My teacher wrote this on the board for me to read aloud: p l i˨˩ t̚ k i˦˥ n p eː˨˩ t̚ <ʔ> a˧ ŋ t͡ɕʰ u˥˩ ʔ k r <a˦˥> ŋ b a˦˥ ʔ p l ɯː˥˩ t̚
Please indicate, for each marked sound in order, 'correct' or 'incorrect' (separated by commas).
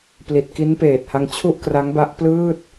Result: incorrect, correct